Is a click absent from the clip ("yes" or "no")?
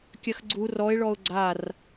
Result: no